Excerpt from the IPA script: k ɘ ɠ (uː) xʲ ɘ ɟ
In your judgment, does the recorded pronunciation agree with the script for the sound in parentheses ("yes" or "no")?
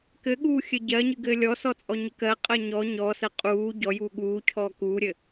yes